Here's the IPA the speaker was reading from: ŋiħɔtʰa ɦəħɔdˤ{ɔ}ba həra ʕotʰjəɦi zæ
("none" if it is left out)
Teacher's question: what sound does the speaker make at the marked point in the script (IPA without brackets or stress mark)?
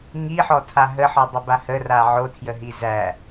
ə